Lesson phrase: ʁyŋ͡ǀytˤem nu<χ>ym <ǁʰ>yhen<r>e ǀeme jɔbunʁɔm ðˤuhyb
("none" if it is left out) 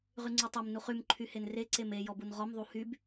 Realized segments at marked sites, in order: χ, ǃʰ, r

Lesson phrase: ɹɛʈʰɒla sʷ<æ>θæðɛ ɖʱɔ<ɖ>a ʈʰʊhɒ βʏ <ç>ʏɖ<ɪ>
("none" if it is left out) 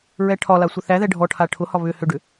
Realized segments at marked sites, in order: ə, ʈʰ, h, ʏ

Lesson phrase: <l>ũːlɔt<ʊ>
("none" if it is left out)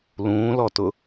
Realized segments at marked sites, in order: l, ʊ

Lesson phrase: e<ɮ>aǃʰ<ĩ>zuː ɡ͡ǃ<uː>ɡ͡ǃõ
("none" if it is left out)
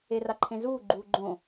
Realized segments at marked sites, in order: r, ẽ, uː

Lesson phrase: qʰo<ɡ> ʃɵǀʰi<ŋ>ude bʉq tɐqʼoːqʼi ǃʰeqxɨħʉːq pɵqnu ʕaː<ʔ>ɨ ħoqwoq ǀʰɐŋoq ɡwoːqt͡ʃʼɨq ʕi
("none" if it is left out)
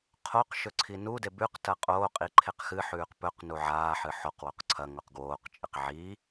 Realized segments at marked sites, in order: q, n, ħ

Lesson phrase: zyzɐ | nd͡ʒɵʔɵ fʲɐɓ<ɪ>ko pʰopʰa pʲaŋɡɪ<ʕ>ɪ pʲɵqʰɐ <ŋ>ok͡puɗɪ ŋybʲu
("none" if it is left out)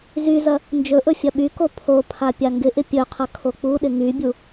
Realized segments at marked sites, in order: y, ʔ, kʰ

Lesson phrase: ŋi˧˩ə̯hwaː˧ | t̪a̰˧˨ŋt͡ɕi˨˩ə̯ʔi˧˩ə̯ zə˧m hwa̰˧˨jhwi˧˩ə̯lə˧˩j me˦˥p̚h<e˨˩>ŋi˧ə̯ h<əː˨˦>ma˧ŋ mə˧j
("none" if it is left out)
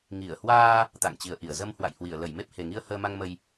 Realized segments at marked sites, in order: e˨˩, əː˧

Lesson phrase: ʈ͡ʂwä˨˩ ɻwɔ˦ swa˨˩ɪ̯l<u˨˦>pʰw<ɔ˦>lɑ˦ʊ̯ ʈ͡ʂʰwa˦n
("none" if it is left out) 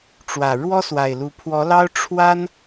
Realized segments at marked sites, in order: u˨˦, ɔ˨˦

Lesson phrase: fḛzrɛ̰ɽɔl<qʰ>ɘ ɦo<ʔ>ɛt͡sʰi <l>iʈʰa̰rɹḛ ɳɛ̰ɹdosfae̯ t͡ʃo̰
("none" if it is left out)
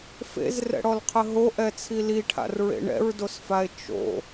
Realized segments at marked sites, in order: qʰ, ʔ, l

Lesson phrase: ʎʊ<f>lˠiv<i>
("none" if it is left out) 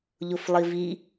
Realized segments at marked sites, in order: f, i

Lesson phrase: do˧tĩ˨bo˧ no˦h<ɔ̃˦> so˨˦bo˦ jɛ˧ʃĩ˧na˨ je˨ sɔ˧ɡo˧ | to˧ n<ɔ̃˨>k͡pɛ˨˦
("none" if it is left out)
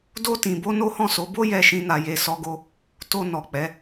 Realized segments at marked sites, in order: ɔ̃˦˨, ɔ˨

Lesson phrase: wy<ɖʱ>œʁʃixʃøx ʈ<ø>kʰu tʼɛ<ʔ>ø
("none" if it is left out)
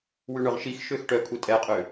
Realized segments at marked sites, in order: ɳ, œ, qʼ

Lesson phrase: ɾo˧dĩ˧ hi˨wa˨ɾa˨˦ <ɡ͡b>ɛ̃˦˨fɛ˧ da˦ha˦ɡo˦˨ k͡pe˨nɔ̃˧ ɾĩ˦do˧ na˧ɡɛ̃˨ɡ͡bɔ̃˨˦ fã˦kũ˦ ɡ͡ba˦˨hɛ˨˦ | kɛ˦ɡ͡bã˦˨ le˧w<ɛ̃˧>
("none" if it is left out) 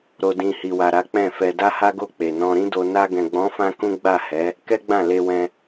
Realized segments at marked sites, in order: k͡p, ɛ̃˧

